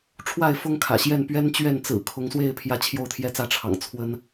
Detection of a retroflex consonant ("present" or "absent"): present